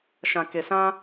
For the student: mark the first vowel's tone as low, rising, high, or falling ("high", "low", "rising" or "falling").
low